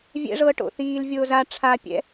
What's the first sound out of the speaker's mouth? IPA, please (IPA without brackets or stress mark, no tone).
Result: vʲ